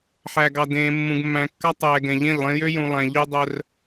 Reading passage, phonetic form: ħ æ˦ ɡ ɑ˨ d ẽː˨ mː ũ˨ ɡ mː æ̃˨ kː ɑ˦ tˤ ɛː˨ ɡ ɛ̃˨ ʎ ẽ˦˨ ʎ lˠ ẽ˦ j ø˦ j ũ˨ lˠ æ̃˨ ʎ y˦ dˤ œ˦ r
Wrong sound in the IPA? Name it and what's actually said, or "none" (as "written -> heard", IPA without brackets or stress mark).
æ˦ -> æ˨